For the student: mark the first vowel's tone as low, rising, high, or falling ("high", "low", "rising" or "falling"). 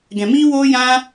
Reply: low